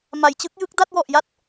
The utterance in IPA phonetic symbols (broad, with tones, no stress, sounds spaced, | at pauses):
m a˩˦ j t͡ɕ ɯ˦˥ k̚ j ɯ˦˥ k̚ d a˥˩ t̚ w ɔ˨˩ ʔ j a˥˩ t̚